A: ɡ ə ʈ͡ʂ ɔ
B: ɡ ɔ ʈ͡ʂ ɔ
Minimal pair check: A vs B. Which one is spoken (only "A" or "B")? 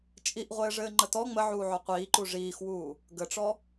A